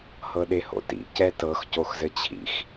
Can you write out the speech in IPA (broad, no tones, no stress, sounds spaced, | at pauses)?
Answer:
h ɤ ɗ e h o̰ t ḭ c ɛ t ɤ x c o x z ɘ t͡ɕʰ ḭ x